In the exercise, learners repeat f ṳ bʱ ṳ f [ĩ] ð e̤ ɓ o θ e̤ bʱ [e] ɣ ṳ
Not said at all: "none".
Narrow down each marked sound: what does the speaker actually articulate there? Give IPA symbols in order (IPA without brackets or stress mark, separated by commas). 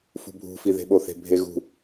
i, e